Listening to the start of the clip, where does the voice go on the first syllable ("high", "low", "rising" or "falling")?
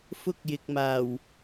high